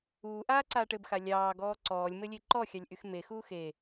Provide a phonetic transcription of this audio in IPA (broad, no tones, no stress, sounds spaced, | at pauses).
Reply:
uː ʔ aː ǀ aː ʈ ɘ b x a lʲ ɑː ɡ ɔː ǀ ɔː lʲ m ɘ lʲ e ǃ ɔ xʲ ɑ lʲ ʔ y x m e x uː x e